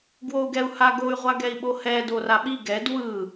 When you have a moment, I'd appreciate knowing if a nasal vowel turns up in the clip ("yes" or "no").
no